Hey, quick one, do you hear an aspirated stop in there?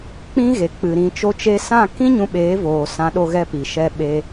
no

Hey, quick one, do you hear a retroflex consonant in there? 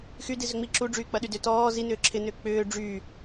yes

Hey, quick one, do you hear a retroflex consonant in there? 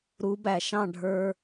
yes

